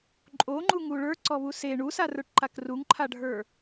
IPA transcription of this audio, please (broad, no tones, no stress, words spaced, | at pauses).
ǃʼoŋ͡ǃuŋu ɭə˞ǀɔβu se ɳusarə˞ʈǃak ruŋǃʰaɖʱə˞